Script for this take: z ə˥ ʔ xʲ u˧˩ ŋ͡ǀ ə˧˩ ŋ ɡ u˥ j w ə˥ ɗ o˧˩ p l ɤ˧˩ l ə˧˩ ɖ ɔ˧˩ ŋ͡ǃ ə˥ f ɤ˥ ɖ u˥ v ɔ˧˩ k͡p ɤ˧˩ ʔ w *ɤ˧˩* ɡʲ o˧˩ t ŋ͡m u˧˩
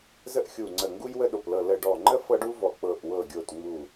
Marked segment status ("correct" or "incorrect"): correct